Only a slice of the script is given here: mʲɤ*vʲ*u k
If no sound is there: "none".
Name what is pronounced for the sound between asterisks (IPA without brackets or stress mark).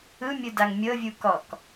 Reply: vʲ